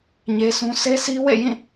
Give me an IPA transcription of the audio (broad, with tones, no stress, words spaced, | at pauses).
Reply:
ɲe˦sʰũ˦ sʰe˦sʰi˦wḛ˦˨ jĩ˦˨